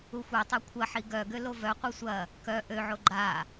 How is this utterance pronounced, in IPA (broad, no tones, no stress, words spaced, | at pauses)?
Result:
uxʷetˤa kʷʰɐħi ɡœ ɡølovœqʷœ sʷɐ | kœ ʔøʕo ɡ͡ǃa